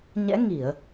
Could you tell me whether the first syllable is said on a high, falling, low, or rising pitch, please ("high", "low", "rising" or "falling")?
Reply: rising